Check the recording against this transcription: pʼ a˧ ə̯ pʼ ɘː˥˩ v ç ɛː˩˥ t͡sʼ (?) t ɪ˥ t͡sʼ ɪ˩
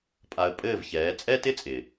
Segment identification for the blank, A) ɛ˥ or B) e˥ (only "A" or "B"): A